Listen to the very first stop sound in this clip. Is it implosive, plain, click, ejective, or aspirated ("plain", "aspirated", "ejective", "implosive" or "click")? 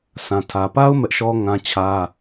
aspirated